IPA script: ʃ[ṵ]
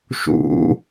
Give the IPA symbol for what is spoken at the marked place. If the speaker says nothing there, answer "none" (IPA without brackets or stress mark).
ṵ